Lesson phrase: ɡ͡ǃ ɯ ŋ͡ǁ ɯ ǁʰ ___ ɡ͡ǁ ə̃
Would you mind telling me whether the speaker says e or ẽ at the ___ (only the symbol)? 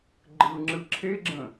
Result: e